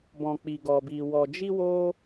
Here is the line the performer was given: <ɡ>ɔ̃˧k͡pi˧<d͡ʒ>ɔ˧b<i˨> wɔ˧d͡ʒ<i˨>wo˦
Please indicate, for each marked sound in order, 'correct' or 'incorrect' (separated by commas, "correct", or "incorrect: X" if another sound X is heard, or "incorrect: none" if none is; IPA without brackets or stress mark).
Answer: incorrect: b, incorrect: ɡ, incorrect: i˧, incorrect: i˦